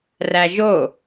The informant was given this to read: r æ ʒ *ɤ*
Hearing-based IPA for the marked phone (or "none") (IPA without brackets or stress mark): o